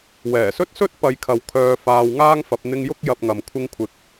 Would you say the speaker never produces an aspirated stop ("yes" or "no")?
no